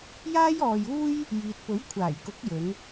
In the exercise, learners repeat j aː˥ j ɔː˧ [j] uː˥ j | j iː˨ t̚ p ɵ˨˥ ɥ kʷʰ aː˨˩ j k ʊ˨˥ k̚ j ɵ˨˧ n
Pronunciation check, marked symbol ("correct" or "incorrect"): correct